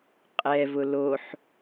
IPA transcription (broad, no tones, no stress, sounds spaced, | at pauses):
qʼ ɛ v ʊ l o ħ